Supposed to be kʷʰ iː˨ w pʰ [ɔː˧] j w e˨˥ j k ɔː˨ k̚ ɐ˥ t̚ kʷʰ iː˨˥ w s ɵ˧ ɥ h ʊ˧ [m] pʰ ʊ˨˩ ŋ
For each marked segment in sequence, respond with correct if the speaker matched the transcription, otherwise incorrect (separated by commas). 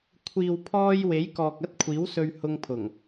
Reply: correct, incorrect